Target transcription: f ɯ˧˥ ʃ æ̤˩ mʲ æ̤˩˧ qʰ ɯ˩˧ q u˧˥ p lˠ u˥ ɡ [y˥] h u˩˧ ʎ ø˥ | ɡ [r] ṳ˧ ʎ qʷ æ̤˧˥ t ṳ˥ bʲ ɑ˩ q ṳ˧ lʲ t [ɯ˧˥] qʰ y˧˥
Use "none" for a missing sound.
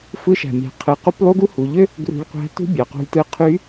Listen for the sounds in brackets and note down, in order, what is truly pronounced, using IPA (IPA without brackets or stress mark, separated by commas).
u˥, r, ɯ˧˥